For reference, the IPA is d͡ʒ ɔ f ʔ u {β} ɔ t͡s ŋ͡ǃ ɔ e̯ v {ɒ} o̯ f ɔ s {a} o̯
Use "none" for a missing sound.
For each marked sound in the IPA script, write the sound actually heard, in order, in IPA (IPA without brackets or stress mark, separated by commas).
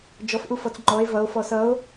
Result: f, ʌ, ʌ